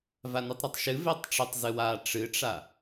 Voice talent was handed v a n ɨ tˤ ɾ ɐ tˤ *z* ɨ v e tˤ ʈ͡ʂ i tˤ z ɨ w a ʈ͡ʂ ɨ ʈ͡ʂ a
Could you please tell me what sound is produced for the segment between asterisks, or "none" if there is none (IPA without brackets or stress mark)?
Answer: ʃ